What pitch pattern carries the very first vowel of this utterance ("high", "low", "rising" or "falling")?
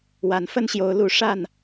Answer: rising